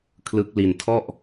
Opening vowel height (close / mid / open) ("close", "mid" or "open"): close